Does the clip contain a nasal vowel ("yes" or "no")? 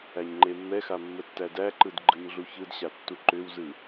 no